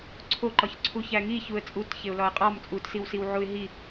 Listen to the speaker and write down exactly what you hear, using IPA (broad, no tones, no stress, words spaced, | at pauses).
ǀʰoǃɒçǀʰuçæ ŋi çuə̯t͡sʼut çeʊ̯lɒə̯qʼɒm t͡sʼutsiwsiw ʕuɪ̯ɦi